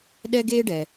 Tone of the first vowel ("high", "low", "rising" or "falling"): high